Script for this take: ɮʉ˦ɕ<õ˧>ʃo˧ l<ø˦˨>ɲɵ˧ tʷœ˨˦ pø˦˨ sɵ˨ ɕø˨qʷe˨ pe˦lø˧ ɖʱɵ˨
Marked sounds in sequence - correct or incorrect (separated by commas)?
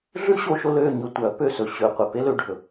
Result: incorrect, correct